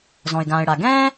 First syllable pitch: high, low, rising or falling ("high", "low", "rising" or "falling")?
low